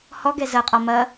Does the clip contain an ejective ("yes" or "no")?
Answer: yes